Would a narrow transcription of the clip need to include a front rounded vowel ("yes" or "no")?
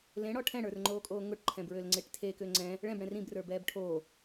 yes